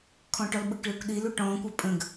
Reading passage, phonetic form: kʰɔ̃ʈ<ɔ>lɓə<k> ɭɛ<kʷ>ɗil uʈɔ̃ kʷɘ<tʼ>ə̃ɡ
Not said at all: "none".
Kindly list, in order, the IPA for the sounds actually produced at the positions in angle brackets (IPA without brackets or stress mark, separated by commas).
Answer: ɔ, k, kʷ, pʼ